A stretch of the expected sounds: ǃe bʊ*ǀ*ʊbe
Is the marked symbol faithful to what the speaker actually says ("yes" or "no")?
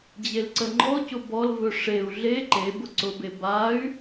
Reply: yes